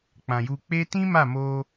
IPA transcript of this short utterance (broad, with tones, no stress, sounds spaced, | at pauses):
k͡p ã˨ j u˧ k͡p e˦ t ĩ˦ m a˦˨ m o˧